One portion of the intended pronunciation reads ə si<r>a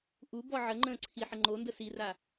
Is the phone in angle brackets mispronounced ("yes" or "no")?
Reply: no